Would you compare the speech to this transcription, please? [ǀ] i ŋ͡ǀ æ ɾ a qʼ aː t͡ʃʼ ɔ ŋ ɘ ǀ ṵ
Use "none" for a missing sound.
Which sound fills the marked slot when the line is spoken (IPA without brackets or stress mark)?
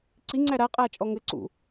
ǀ